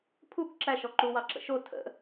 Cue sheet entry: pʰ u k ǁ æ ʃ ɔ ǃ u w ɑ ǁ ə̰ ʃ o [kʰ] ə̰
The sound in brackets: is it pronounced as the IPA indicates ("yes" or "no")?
no